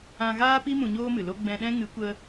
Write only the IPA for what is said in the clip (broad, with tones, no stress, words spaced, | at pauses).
ã˧ɣaː˦pi˦ mũ˧ɲoː˦mɨ˨lo˦ ɡ͡bɛ̃˧ɗɛ̃˦ ŋɨ˨˦kʷə˧